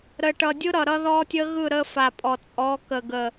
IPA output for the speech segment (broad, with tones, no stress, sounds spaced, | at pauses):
ɾ ə˨ ʈ ʌ˨ dʲ ɯ˦ ɾ ʌ˨ ɾ ʌ˦ ð ɔ˦ tʲ ə˦ ɣ ɯ˦˨ ɾ ə˦ f a˨ pʼ ɔ˨ t͡sʼ ɔ˨˦ k ə˨ ɡ ə˨